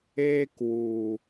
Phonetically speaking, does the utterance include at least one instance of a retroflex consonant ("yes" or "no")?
no